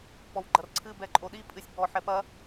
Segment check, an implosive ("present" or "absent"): present